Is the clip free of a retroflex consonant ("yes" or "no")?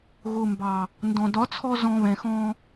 yes